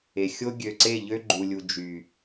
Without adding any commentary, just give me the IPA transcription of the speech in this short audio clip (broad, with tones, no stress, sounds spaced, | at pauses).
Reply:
e˨ xʲ o˦ ɡʲ ø˨ ǀ e˦˨ ʎ ø˦ ɡ͡ǃ u˨ lʲ u˨ d͡ʒ y˨